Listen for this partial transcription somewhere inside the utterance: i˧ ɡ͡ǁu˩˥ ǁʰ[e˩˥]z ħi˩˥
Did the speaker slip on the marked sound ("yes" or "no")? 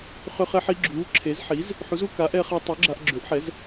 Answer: no